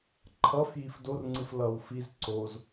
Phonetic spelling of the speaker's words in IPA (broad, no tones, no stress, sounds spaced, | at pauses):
ǃʰ ʌ f j i f d o r ŋ͡ǀ ɯ f l ʌ w f i z ǀ o z